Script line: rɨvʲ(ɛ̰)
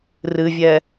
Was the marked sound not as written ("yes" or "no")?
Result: yes